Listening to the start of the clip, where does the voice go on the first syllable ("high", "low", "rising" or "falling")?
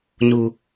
low